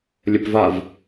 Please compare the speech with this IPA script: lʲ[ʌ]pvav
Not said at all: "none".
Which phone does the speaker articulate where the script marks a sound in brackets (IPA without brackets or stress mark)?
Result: ə